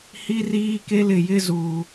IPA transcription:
hi˦riː˦ke˦lɪ˦˨ jɪ˦ zuː˨

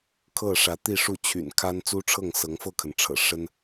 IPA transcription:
kʰɤ˥˩ ʂä˧˥t̪i˥˧ʂu˥˩ t͡ɕʰy̰˨˩nkʰa˥n t͡su˥ʈ͡ʂʰɤ˥˩ŋ sɤ˧˥ŋ fɤ˥˩kʰə˩n ʈ͡ʂʰɤ̰˨˩ ʂə˥n

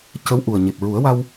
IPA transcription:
cə˧˥wʔu˨˩ə̯ ɲe˨˩p̚ɹu˨˩˦ə̯wa˧w

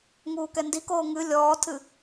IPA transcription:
ŋuːkɛndikoː ŋɨ lʲɔːtʰɨ

